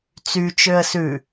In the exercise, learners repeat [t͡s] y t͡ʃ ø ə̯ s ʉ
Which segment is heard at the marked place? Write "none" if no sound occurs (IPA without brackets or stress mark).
t͡s